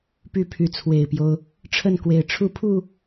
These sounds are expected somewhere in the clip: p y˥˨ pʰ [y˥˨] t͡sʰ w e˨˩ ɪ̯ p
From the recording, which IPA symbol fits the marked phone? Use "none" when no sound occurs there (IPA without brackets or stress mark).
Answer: y˨˦